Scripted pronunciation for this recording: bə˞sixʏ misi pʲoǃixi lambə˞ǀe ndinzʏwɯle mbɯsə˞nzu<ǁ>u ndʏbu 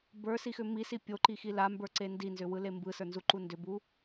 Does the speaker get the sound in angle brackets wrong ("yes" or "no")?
yes